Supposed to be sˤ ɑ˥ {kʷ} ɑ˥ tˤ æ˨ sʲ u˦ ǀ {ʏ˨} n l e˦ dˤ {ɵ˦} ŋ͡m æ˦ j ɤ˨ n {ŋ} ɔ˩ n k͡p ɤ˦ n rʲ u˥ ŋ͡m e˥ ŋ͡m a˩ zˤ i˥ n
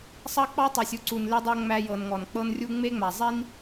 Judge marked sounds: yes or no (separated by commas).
no, no, no, yes